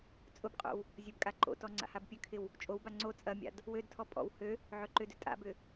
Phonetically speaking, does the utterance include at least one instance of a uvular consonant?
yes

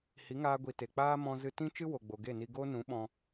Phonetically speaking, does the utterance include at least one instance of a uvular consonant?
no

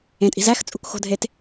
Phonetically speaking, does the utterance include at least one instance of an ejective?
yes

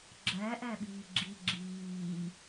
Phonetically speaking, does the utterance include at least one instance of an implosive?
yes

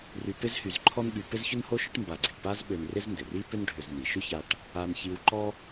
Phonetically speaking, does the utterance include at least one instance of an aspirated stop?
yes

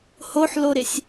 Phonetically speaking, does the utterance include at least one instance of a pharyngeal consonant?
yes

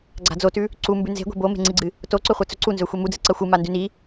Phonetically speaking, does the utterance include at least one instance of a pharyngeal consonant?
no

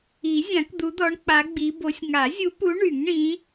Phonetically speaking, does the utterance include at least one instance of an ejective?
no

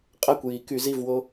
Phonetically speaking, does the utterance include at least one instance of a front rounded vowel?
yes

